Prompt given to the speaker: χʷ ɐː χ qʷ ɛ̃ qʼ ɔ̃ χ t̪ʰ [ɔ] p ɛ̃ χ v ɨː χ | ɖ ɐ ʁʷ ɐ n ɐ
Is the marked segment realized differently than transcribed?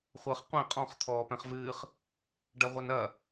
yes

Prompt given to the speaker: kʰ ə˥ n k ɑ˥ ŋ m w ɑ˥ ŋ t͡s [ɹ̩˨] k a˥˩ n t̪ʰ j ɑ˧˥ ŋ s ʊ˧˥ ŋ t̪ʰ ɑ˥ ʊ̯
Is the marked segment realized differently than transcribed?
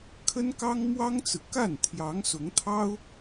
no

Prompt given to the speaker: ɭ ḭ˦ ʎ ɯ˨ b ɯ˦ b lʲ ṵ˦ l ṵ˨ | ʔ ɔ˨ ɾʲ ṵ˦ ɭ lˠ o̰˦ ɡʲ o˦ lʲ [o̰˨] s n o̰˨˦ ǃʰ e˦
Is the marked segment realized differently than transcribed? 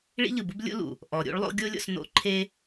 yes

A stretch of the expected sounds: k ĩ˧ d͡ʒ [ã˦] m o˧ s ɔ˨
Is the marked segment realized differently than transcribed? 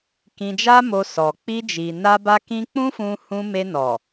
yes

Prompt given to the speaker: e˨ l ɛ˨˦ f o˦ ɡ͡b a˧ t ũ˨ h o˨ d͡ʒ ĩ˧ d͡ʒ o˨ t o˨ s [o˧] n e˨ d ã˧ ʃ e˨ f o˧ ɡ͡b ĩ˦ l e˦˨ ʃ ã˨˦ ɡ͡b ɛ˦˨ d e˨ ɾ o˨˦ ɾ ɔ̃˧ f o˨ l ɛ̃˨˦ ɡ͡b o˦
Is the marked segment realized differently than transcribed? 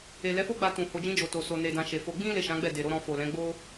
yes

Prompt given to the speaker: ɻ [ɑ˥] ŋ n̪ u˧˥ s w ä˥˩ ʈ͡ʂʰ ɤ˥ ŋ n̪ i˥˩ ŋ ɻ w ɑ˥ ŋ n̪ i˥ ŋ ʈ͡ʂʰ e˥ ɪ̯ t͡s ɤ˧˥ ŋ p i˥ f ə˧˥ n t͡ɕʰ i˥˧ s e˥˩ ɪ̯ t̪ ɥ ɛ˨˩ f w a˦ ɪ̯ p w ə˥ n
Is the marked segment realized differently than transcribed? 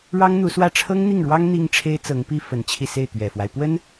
no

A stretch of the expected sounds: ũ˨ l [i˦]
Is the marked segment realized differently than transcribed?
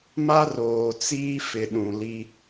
no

